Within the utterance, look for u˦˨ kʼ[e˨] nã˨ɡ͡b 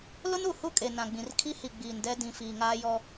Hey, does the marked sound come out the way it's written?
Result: yes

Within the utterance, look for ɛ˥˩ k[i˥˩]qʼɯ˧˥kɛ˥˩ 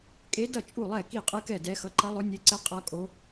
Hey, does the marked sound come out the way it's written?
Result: yes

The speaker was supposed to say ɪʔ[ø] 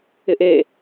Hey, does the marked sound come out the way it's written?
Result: no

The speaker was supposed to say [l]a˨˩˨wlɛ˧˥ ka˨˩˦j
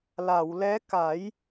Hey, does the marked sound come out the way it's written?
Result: yes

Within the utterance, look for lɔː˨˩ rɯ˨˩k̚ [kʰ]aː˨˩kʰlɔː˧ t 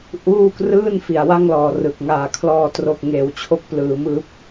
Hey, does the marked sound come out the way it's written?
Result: no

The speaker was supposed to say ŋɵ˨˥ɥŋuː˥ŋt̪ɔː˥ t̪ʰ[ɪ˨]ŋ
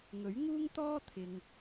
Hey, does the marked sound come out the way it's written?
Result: yes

